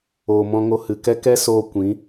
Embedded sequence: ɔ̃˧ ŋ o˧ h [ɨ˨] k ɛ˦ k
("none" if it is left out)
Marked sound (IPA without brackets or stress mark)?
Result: ɨ˨